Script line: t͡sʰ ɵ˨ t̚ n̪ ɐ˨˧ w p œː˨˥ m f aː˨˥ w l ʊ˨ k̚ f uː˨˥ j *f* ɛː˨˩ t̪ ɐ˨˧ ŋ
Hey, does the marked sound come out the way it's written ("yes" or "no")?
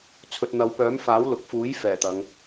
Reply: yes